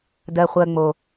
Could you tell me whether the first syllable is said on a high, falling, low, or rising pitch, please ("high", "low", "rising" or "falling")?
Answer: low